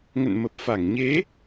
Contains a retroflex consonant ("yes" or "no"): no